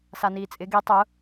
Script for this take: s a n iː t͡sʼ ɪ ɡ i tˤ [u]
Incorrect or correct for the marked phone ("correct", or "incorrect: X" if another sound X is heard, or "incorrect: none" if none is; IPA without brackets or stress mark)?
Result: incorrect: ʊ